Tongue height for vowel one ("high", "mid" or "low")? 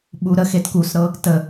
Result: high